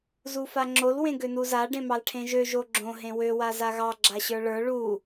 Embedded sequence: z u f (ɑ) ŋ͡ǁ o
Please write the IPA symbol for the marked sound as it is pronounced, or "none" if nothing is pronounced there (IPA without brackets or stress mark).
a